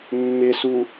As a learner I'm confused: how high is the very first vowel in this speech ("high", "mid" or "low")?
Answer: high